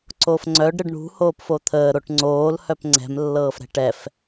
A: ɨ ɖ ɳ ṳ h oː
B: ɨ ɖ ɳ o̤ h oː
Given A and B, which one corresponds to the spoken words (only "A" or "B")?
A